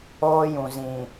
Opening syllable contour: high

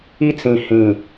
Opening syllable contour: high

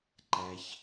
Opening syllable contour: low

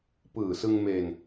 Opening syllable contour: low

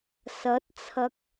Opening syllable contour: rising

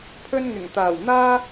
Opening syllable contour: high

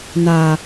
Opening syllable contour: low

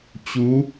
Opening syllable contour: rising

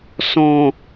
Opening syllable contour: low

